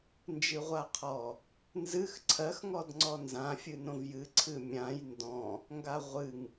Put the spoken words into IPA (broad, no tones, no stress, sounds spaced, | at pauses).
n d͡ʒ ɨ ʁʷ a qʰ ɔ | n z ɨ x ǀʰ ɜ x ŋ ɔ d ŋ͡ǀ ɔ n z ã fʲ ɨ n õ v j ɨ ǀʰ ɨ mʲ ã j n d ɔ̃ | ŋ ɡ a ʁʷ ɨ ŋ